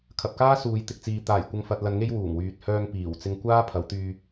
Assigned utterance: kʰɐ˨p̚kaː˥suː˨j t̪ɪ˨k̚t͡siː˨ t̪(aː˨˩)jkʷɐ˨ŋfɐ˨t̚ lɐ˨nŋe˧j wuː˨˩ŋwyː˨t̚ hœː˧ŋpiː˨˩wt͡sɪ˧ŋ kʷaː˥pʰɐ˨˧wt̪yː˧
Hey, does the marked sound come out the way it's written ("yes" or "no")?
yes